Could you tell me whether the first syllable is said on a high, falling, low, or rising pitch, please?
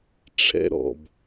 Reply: high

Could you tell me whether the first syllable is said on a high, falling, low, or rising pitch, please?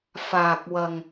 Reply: low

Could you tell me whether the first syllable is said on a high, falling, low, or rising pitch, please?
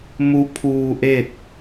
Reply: rising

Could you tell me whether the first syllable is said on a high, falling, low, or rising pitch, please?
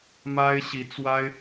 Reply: high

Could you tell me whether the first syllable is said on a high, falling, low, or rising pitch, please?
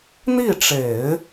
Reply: falling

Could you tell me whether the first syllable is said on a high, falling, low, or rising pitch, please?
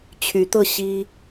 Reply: rising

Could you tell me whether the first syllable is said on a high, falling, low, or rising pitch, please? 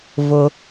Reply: low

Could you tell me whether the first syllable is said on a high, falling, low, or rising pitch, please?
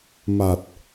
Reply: low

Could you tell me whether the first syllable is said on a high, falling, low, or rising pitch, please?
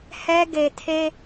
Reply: high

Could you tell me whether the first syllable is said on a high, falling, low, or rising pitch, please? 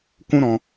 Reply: high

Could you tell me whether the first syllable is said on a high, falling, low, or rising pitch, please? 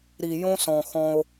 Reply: low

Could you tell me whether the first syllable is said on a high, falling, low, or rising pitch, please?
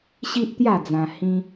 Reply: high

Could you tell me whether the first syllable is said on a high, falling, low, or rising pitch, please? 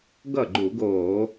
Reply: falling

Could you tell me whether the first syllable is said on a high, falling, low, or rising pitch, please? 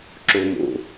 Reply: low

